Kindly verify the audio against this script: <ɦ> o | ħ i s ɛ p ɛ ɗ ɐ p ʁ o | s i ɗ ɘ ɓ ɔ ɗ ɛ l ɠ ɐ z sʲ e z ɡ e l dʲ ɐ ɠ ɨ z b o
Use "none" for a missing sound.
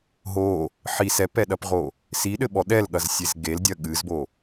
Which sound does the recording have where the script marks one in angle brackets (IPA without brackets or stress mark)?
ɦ